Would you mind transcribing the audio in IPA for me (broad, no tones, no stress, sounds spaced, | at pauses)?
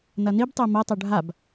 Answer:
n ɐ n i b tˤ e m ɐ tˤ ɵ ɖʱ a b